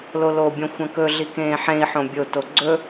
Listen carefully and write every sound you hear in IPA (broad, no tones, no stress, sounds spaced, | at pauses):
l o l o bʲ õ xʷ ɐ̃ k ɵ ɮ i k ẽː ħ ẽ i̯ ħ õ bʲ o t o ɡ͡ǀ ɵ